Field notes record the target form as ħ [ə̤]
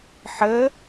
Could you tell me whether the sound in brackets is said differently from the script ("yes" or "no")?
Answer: yes